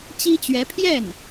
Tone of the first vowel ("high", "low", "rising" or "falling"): high